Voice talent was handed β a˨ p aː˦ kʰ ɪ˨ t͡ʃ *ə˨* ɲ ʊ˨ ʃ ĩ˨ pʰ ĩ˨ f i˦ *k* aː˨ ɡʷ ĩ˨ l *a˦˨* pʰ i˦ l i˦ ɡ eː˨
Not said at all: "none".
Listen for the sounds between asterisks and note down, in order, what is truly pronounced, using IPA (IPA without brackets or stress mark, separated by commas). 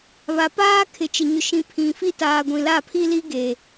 ɪ˨, t, a˦˨